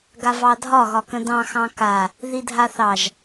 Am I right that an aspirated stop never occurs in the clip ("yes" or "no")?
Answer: yes